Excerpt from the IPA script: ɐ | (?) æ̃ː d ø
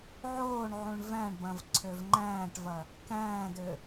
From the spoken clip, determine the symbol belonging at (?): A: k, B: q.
A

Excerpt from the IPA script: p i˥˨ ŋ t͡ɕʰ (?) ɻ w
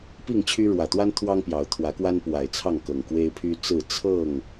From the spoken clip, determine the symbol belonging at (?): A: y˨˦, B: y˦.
B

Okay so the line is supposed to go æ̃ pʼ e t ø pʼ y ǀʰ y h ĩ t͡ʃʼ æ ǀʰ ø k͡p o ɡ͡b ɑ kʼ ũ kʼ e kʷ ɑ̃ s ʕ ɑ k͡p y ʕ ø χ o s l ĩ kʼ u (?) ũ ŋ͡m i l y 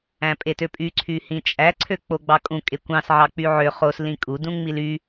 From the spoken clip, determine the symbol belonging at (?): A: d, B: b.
A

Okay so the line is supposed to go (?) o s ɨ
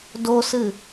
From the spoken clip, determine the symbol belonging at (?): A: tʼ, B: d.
B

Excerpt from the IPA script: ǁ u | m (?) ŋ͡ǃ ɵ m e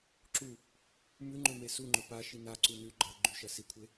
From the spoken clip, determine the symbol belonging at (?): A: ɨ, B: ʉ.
B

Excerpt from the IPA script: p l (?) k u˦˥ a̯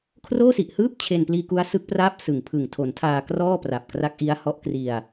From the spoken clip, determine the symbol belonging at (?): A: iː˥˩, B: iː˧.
B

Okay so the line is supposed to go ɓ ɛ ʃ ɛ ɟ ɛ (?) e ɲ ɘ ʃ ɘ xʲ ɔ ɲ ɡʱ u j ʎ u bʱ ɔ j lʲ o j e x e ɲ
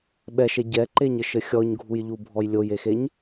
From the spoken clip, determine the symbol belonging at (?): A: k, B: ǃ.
B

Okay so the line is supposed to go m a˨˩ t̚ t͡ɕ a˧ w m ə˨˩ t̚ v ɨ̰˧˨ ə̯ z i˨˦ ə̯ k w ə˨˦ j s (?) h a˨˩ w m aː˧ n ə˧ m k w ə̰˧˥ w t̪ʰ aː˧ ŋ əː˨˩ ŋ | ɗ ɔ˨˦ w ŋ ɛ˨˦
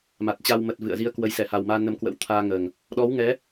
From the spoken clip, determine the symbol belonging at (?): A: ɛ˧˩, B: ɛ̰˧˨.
A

